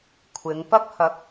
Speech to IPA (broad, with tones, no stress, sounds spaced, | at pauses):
kʷʰ ɪ˨˧ ŋ p ɐ˥ k̚ h ɐ˨˥ k̚